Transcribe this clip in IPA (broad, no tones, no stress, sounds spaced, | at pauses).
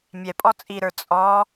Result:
mʲ ɛ pʼ ɔ t͡sʼ i ɾ ə˞ t͡sʼ ɔ